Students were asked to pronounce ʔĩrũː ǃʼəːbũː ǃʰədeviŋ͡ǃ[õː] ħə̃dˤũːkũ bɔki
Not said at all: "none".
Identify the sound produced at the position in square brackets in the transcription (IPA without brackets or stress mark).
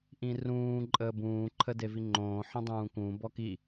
õː